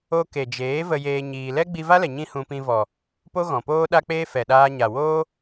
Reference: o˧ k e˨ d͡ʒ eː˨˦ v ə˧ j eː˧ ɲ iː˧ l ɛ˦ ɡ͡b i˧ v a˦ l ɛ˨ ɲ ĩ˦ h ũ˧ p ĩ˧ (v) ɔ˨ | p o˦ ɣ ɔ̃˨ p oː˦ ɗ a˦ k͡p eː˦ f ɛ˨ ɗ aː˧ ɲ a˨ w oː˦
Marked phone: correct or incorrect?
correct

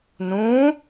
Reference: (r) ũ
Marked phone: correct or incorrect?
incorrect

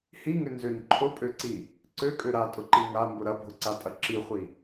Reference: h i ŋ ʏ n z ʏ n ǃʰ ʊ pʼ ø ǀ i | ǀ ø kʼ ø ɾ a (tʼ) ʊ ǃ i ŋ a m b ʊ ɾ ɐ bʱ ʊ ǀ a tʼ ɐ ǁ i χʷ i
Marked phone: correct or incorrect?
correct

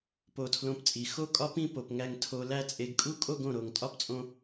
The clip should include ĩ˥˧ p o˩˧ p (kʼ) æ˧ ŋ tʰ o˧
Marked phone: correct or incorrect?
incorrect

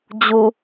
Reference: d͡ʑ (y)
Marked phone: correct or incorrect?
incorrect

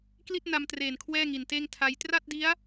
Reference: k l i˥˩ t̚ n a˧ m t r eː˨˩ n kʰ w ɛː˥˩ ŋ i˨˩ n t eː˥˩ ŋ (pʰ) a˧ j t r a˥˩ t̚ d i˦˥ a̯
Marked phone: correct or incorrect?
incorrect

